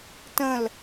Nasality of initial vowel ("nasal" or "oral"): nasal